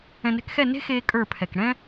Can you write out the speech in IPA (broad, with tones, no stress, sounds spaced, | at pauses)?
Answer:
ɛ̃˨ n ɛ̤˦ k x ɛ˦˨ n e̤˦ x eː˦ kʼ ə˞˦˨ pʰ ɛ˨ k ɽ ɛ̃˦